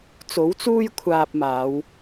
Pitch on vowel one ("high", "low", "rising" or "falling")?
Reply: rising